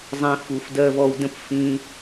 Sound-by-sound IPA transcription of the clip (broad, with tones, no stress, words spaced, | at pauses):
zˤĩ˦fu˧f dɜ˧vɔ˧wdə̃˦˨p fĩ˧